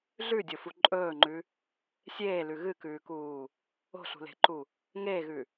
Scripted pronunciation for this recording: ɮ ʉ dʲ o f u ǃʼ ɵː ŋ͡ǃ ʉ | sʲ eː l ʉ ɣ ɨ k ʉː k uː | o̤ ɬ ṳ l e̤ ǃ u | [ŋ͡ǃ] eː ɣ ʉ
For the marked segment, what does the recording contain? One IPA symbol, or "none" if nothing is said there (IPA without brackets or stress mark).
ŋ